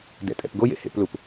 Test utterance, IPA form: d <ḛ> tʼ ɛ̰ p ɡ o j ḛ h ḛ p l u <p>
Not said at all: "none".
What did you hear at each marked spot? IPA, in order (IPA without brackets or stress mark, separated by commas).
ɛ̰, p